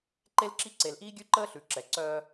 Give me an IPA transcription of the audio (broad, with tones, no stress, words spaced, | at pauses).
ǃe˦lǁi˦ ǀe˨lʔiː˦ɡʲʉ˦ ǃəː˦ɬʉ˨ ǁɛ˨ ǀœː˦